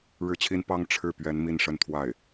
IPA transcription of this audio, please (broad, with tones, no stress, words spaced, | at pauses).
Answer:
ɻɻ̩˥˩t͡ɕʰi˥n pɑ˥ŋ ʈ͡ʂʰɻ̩˥˩pɥɛ˧˥n mi˥˧nʂə˥˧nt̪ʰwa˥˩ɪ̯